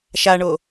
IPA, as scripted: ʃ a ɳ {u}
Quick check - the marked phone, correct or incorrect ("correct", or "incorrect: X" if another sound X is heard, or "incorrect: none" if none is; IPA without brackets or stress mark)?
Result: incorrect: o